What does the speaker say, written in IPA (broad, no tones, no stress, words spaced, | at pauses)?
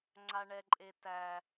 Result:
ŋ͡ǀaɳɛǃʼetæ